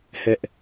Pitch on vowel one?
high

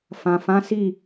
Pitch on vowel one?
low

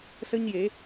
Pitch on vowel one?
high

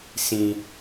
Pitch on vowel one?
high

